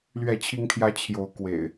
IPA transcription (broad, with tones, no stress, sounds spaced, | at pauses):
l ɥ ɛ˥˨ t͡ɕʰ i˦ ŋ t̪ʰ j ä˦ t͡ɕʰ j o˨˦ ʊ̯ k w ḛ˨˩ ɪ̯